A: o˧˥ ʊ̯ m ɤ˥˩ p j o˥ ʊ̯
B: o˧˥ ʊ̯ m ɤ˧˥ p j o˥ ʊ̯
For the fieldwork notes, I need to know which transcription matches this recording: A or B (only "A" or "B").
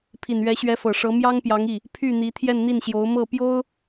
A